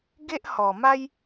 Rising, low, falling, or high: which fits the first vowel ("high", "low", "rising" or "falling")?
high